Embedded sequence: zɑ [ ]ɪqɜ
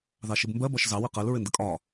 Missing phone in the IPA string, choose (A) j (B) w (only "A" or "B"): B